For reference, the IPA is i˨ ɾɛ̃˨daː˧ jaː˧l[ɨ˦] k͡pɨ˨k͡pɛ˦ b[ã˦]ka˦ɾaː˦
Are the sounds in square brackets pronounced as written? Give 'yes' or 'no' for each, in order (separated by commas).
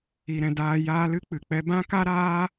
yes, yes